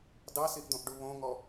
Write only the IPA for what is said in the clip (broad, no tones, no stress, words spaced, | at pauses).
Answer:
dɑsiʔd̪õʔɖu βõŋɔ